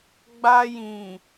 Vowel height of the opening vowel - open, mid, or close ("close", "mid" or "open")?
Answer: open